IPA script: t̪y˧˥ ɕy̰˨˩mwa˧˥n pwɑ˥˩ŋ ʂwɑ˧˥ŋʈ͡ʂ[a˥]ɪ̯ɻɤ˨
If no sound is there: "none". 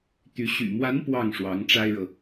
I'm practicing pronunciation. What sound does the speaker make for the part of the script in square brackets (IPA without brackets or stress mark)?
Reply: a˥